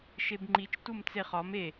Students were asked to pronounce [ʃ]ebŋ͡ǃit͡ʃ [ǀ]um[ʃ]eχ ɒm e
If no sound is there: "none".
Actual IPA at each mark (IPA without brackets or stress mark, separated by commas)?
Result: ʃ, t, t͡s